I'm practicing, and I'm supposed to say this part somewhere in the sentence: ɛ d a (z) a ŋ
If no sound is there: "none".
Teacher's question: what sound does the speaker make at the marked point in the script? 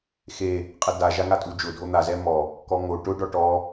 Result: ʒ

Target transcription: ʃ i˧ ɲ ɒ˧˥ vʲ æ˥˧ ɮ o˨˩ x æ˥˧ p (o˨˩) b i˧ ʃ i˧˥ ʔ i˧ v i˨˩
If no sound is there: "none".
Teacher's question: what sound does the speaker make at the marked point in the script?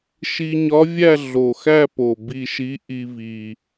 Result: o˨˩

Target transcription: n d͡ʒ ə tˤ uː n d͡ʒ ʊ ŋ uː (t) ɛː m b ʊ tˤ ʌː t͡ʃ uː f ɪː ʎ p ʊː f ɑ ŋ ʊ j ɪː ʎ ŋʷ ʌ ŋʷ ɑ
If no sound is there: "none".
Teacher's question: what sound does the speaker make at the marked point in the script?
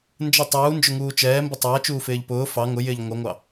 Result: t͡ʃ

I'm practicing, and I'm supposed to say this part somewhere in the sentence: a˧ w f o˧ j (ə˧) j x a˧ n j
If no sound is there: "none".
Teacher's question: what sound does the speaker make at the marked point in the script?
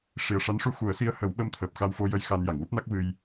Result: ə˧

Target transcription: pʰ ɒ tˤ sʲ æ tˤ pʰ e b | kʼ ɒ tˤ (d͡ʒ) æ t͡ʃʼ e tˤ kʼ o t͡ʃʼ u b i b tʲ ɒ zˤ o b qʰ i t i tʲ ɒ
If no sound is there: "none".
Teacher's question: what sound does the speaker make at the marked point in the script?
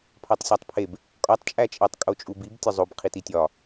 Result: t͡ʃʼ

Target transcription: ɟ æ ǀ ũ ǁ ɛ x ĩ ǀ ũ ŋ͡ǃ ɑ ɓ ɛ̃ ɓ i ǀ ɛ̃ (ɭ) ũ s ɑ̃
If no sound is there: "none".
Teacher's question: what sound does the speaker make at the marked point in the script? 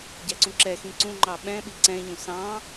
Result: ʎ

